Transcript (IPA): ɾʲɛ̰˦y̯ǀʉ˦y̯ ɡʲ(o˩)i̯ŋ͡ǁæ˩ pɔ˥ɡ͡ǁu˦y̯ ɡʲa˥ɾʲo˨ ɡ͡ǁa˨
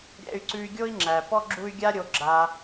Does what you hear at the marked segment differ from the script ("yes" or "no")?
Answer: yes